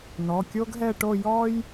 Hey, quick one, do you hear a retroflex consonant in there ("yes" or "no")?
yes